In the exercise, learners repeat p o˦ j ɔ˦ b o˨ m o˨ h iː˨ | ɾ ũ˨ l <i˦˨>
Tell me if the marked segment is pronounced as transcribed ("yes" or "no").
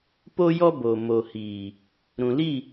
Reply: yes